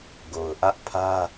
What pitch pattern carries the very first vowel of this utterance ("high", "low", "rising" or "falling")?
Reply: low